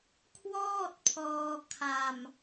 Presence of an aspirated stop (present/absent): present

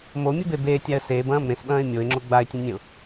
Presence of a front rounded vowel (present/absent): absent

